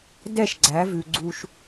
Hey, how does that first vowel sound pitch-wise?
falling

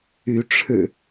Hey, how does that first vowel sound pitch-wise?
rising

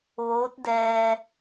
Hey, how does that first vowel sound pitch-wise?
rising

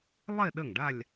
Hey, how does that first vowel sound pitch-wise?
falling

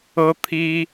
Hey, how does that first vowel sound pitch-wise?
high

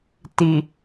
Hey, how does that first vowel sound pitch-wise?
low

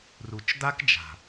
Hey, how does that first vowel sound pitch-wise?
low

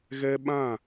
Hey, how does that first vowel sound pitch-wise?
high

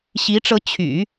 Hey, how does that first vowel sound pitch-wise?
rising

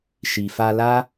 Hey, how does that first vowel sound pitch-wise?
low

